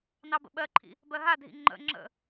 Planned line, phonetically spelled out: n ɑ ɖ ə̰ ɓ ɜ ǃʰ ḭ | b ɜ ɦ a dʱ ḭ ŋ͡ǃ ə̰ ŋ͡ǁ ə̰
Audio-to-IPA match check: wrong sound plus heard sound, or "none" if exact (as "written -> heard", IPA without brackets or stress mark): ɖ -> b